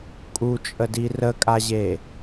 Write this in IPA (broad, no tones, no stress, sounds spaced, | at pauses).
kʼ u t͡ʃʼ ə d i r ə kʼ a ʑ e